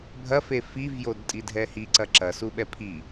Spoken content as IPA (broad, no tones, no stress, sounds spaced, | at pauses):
bʱ ɐ f e f i v j o d tʼ i dʱ ɛ h i ǀ ɐ ǁ ɐ s u ɓ ɛ pʰ i